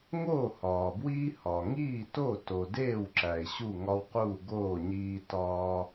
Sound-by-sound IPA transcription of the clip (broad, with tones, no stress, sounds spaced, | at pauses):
ŋ oː˥˩ h ɒː˩ b w iː˦ h ɒː˩ ŋ iː˥˩ t o˥˩ t o˩ d eː˥˩ w ǁ æ˩ ɪ̯ ɕ u˥˩ ŋ ɒ˦ w q uː˥˩ ɡ oː˥˩ ɲ iː˦ t ɒː˦